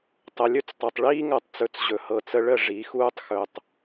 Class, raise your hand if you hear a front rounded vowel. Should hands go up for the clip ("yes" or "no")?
no